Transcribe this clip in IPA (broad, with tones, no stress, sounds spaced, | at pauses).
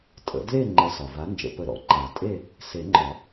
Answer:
tʼ ə̰˩˥ d l e˥˨ ŋ͡ǃ ə˨˩˦ s ɒ˩ v a˩˥ n d͡ʒ ə̰˨˩˦ p ə˨˩˦ ɾ ɔ̰˩ ǃ a˨˩˦ tʼ e˥˨ | s e˨˩˦ ŋ͡ǃ ɒ˨˩˦